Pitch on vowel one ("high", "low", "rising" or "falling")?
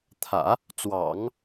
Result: low